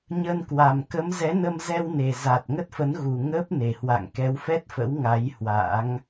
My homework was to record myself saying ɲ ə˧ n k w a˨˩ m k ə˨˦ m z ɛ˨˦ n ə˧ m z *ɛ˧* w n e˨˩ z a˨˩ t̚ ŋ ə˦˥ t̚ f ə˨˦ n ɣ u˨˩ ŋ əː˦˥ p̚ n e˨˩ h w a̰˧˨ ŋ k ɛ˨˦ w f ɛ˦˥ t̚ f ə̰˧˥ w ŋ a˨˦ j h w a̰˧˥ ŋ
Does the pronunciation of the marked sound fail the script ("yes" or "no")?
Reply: no